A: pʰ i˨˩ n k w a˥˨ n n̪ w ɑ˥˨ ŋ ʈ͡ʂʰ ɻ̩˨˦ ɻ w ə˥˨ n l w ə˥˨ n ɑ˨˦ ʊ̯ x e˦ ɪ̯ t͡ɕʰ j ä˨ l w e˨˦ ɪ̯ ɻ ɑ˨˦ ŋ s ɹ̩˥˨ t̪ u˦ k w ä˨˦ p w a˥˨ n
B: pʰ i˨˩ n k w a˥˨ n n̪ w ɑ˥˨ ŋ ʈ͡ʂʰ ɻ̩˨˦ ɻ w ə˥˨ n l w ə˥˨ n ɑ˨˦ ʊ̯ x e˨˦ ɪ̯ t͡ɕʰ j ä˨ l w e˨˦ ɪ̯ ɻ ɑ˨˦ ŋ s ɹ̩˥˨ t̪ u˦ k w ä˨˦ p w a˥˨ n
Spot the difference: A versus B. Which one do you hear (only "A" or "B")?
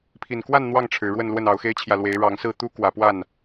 A